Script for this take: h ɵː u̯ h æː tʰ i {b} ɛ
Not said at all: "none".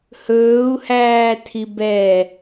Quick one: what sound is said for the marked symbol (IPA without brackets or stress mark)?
b